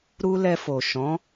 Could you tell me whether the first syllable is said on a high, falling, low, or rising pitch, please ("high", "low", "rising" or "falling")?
high